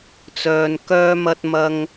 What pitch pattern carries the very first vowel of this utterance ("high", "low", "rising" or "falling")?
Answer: low